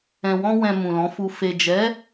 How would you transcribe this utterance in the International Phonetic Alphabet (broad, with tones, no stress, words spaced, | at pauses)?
ɛ̃˨wɔ̃˧wɛ̃˨ mũ˨lɔ̃˨˦fu˧ fe˨d͡ʒɛ˨˦